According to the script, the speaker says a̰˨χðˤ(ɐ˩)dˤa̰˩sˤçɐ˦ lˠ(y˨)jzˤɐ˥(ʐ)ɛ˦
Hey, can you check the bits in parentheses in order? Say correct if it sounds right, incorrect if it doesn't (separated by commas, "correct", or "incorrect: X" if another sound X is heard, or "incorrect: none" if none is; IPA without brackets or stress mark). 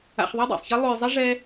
incorrect: ɐ˥, incorrect: u˨, correct